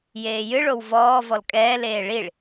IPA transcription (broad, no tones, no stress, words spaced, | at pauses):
jeːjɨɭow vɔː vɔlkʼɛːleː ɭiɭ